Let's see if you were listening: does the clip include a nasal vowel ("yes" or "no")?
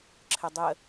no